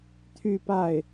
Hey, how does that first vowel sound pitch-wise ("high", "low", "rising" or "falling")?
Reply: falling